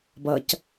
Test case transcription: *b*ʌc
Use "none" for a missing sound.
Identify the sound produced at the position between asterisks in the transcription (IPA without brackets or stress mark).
b